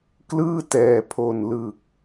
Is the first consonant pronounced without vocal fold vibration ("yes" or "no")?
yes